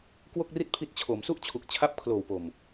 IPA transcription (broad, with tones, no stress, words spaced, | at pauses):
kwo˥˩k̚ri˥˩t̚pʰi˦˥t̚ t͡ɕʰo˩˦msu˥˩ʔt͡ɕʰu˨˩k̚ t͡ɕʰa˦˥p̚kʰloː˨˩wpo˨˩m